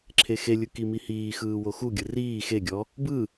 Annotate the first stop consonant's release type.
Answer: click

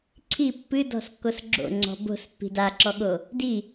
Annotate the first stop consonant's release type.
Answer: click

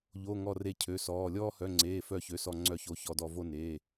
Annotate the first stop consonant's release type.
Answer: aspirated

